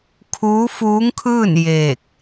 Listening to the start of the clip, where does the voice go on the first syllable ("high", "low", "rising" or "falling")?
rising